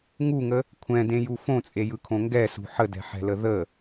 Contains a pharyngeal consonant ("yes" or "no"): yes